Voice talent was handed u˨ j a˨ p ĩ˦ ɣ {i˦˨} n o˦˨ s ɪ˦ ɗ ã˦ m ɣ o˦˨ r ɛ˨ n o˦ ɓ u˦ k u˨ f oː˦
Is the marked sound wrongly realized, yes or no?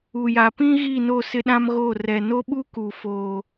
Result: no